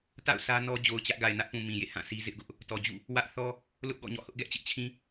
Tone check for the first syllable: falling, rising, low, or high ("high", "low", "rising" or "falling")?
falling